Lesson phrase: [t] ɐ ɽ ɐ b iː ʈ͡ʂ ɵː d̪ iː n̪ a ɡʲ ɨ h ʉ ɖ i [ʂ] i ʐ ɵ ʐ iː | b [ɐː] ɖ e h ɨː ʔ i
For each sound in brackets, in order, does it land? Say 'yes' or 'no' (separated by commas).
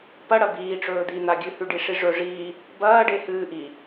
no, yes, yes